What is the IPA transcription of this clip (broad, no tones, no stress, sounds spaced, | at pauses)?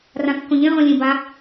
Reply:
r ã kː õ ʎ ẽ ʁ õ lʲ ẽ b a